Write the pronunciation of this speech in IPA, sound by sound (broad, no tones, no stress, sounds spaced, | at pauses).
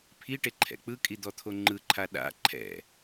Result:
pʰ i ʈ e ǃʰ ɛ̰ k͡p ɯ kʼ i d̪ ɔ t̪ʰ o ŋ͡ǃ ɯ ǃʰ a ɗ a̰ ǃʰ ɛ̰